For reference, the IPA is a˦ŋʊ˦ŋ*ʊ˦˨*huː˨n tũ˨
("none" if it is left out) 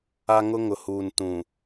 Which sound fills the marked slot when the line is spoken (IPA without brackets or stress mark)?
ʊ˨